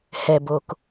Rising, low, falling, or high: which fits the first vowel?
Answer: low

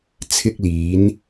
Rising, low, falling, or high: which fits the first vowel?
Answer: high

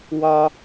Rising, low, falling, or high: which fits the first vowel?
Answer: high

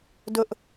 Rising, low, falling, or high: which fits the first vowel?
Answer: high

